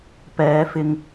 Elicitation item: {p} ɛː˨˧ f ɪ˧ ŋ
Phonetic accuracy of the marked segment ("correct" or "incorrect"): correct